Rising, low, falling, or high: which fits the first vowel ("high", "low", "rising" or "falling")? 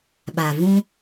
low